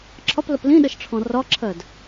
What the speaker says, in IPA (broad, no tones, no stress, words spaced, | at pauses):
ǁʰɒpləp lĩɗəʃʈ͡ʂʰɔ̃ rɒǁʰɜd